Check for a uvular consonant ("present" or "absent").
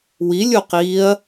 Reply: present